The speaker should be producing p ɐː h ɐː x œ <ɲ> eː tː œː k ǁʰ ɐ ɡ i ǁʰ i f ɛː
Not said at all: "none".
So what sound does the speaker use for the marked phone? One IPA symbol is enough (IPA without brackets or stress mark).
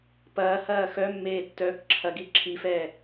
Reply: mː